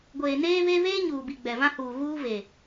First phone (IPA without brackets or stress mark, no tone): ɡʷ